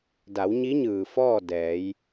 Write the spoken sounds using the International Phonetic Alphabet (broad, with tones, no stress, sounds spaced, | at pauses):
d a˩˧ w ɲ i˧˥ ɲ ɯː˩ f ɔː˥˨ d ɛː˩˧ j